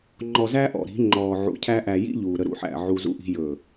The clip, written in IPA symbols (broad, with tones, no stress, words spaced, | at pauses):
ŋ͡ǃɔ˨zæ˦ ʔɔ̰˨ɾi̤˨˦ ŋ͡ǃɔː˨ʕṵ˨cʰæ˦ ʔæ˨jḭ˦ ʎuː˨ɾə˦ ɾṵ˦ħæ̰˦˨ʕu˦ zṵ˦ʔi̤˦ jɵː˦˨